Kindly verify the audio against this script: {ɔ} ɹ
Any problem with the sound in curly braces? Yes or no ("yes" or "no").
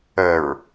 yes